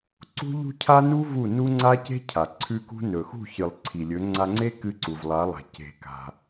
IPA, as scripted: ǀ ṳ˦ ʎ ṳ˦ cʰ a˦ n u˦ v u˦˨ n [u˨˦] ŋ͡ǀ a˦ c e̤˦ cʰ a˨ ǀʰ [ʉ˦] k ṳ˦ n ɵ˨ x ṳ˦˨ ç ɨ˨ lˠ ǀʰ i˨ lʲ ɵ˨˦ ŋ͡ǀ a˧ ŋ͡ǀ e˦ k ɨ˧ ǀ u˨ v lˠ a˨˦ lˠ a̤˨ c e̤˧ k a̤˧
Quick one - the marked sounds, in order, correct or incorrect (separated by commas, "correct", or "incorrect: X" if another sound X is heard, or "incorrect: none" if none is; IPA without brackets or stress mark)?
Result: incorrect: u˦, correct